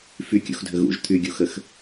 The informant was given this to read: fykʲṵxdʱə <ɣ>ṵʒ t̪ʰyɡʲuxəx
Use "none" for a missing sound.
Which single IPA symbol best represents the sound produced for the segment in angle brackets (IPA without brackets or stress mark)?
ɣ